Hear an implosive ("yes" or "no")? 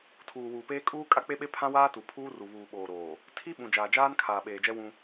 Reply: yes